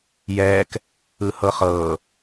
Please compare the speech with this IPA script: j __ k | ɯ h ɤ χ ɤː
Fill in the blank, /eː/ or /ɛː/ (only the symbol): ɛː